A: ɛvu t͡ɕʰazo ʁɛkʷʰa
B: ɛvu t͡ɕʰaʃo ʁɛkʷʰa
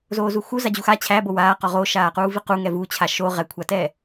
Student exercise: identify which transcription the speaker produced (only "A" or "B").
B